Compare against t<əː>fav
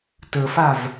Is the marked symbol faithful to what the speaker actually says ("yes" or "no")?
yes